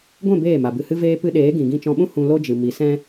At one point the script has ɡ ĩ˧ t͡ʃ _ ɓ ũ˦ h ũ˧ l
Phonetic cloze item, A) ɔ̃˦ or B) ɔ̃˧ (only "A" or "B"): B